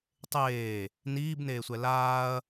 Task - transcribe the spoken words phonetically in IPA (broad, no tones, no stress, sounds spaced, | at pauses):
tˤ eː | n iː b n eː sʷ ɛ l aː ɐ̯